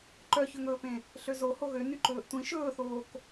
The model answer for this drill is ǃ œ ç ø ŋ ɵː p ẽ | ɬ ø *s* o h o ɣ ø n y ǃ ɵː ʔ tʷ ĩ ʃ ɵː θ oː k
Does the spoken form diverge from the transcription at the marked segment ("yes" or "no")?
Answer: yes